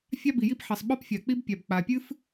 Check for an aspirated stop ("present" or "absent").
absent